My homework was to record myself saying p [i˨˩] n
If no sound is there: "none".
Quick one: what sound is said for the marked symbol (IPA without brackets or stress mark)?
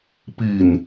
i˨˩